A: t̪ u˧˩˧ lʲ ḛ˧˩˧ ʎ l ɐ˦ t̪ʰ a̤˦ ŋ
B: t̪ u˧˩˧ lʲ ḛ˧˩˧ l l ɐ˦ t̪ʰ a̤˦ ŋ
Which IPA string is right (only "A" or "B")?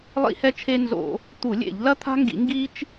A